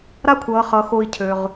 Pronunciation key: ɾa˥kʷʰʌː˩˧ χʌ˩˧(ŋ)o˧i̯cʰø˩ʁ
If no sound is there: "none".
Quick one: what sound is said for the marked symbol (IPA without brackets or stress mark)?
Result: x